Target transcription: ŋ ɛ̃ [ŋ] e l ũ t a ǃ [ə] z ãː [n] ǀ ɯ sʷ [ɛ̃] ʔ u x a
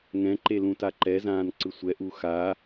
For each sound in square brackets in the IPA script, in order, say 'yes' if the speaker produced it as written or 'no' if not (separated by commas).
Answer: no, no, yes, no